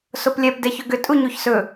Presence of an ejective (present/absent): present